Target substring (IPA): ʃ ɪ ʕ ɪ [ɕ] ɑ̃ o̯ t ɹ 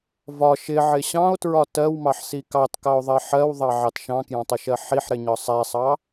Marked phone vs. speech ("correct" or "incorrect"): correct